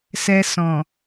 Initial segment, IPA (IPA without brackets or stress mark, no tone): s